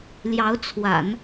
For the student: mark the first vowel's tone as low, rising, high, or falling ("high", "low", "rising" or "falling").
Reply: rising